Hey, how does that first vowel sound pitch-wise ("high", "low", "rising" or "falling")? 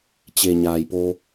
low